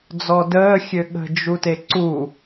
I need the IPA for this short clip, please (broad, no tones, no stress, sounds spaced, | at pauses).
d͡z ɔ d əː xʲ ø ɠ ə̤ d͡ʒ u t e ǀ u